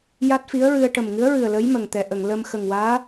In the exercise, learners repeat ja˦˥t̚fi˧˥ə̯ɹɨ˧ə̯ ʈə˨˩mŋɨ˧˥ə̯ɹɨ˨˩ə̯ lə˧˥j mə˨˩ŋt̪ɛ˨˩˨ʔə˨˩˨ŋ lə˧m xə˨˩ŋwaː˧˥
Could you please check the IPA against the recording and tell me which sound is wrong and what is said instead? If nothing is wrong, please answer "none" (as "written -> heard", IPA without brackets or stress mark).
none